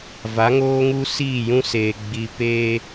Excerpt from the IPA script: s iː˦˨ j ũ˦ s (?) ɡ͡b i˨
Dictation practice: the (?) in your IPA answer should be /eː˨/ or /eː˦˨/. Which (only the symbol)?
eː˨